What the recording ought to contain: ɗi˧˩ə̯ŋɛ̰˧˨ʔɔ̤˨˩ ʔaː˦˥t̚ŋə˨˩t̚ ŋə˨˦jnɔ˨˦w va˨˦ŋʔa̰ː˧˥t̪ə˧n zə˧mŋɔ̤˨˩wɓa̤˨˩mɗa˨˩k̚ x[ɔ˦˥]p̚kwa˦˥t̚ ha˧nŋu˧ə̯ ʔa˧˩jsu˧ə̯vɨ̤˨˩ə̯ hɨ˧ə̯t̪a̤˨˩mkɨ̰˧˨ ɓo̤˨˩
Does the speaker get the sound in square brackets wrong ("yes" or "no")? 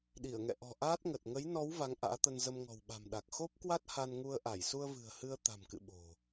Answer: yes